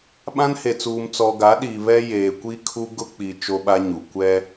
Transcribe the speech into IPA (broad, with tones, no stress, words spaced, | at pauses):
ɓã˦nhe˨t͡suː˨m t͡sɔ˨ɡa˨˦ɗiː˨ βɛ˦ jeː˨kʷi˦ kʰu˦ ɡʊ˦k͡pi˨ t͡ʃo˦ɓa˦ɲu˨ kʷɛ˦